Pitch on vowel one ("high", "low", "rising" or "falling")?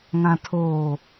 low